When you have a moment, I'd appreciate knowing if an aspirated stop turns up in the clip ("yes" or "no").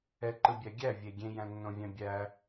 no